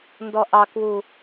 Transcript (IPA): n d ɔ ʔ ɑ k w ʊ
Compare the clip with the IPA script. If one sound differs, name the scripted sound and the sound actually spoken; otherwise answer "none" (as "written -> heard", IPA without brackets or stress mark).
ʊ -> u